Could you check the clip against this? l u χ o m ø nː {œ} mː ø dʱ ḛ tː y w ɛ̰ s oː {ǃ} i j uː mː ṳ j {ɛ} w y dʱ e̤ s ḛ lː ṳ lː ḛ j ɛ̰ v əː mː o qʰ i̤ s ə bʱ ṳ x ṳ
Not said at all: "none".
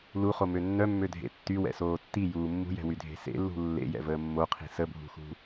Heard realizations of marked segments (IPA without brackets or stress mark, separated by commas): œ, tː, ɛ̤